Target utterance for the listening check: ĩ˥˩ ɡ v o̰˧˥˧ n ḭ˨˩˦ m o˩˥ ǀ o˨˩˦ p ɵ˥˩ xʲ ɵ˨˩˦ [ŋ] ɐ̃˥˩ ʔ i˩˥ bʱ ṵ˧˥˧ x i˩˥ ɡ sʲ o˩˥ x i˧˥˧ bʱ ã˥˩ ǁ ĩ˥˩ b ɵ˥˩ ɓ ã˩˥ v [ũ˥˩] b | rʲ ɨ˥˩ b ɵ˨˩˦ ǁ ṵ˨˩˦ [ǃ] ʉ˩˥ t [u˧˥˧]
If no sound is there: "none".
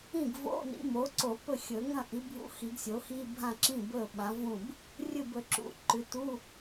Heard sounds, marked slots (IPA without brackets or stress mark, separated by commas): ŋ, ũ˥˩, ǃ, u˧˥˧